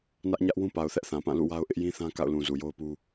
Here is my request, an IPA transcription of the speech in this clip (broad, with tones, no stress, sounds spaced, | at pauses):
n ä˦ ʔ ɲ ä˦ ʔ w ũ˦ p a˨ ʊ̯ θ ɛ˦ ʔ θ ã˨ p ã˦˨ l ṵ˦˨ w a˦ ʊ̯ ʔ ɪ˦ ʔ j ĩ˦ θ ã˦ k a̰˦˨ ʊ̯ l ũ˨ z u˨ j o˦ ʊ̯ p u˦